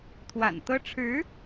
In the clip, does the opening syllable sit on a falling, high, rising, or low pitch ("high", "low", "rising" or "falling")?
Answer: low